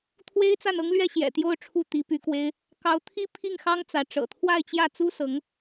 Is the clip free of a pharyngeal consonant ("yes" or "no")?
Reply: yes